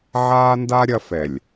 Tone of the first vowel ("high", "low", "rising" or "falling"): high